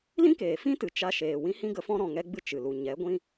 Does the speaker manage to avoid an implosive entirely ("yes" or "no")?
yes